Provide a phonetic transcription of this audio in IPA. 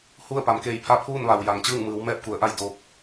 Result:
hu˥˨ə̯pa˩˧m keː˧˩jpʰa˥˨pʰuː˥˨n ʋa˩wja˩ŋt͡ɕɯː˥˨ŋmɯː˩˧w mɛː˥˨p̚ku˩˧ə̯ʔa˥˨j do˧p̚

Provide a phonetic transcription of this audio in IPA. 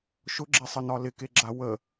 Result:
ʃʊɡ͡ǁɛsˤənɒ lɪkeɡ͡ǁa wə

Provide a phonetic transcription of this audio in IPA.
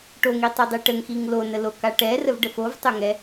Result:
ʈoŋitˤidˤi ʈəŋxiŋ lonəloka ʈɛrəvɖə fovtˤœŋɛ

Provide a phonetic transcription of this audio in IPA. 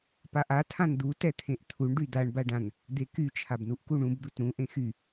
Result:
paʔa tʰãnd̪u tɛt̪ʰẽʔt̪ʰuɳ ɖyd̪aɳ baɖãn | d̪eky t͡ʃʰabnuʔkuɳũb d̪utɾũ ʔẽxy

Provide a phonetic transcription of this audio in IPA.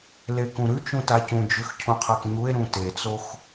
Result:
lekũɾʉt͡ʃũ tacũd͡ʒʉx cʰũqʰakɲue̯ɾũ tet͡sox

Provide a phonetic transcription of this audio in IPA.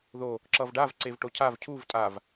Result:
ðo | ǁʌvɖav ǀevʈocʰav cʰuv tʼav

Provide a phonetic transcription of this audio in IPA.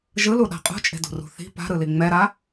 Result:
ʒɯluɗa̤ qʼṳt͡ʃʼe̤dṳrṳ θi̤ pa̤ɾɯli ŋ͡mɛɾa

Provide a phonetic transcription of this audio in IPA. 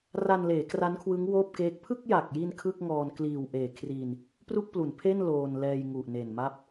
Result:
ra˧nleː˩˦ kra˦˥nkʰwɯ˦˥ŋ woː˥˩p̚keː˦˥k̚ pʰɯ˥˩k̚ja˨˩k̚ji˧n kʰɯ˥˩k̚ŋɔː˧n kliː˨˩w ʔeː˨˩kʰriː˧n | pru˥˩k̚plu˩˦npʰe˥˩n loː˧nlɛː˧j ŋu˨˩ʔne˨˩n ma˥˩p̚

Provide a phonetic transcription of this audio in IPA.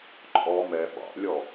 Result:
ǃʼɔ mɛ ɓɑ̰lʲɔ

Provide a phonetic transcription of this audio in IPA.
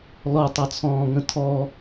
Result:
lɔtˤɑt͡sʰɔ̃ːŋə̃ tʰɔ

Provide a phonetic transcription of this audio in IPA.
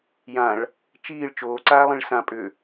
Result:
jãɭ | t͡ʃiːɭ t͡ʃoːǀaːlˠĩɭ sã pʼʏ

